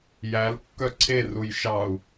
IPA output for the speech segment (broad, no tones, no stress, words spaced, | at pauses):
jælkːœ ǀʰeruj ʃɑu̯